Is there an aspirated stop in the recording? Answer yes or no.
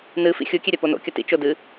no